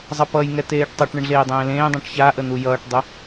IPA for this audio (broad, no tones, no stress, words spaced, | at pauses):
zˤʌpʌjŋɛ teːʈtˤʌʈɳəɳ ɮeːdˤẽːlẽːdˤɛ̃ʈ çaʔə n̪ujʌːʈdˤə